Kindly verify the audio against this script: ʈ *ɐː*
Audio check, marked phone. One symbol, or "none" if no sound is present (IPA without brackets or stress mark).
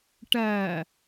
ɐː